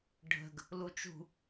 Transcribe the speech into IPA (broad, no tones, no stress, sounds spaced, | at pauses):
ɖʱ ə̤ ɡ | l u t͡ʃ ṳ